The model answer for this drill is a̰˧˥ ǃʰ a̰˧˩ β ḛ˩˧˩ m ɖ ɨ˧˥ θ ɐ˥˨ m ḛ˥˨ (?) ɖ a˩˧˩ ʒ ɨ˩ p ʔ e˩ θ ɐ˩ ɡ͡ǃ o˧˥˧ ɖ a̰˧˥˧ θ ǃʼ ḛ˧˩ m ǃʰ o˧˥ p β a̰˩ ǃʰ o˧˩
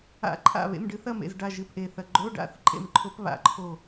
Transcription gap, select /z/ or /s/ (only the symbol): z